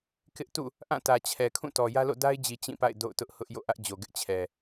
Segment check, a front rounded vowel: absent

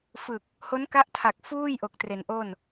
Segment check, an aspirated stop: present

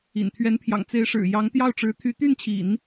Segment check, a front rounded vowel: present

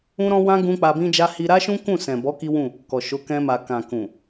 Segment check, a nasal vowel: present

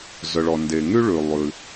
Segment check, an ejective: absent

